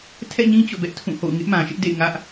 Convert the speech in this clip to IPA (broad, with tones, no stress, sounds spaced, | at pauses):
tʰ ɛ̰˦˨ ɲ ĩ˦ t͡ɕ o̰˦˨ b ɛ˦ ʔ tʰ ũ˦˨ h o̰˦˨ ʊ̯ ŋ ɪ˦ ʔ m ã˨ ʃ ɪ˦ ʔ d ḛ˦˨ ɪ̯ ŋ ä˦ ʔ